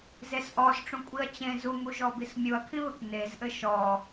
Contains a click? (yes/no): no